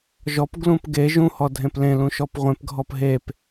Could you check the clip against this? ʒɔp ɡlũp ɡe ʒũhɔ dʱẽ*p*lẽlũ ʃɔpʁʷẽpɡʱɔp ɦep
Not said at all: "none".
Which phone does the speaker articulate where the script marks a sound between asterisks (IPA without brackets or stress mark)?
p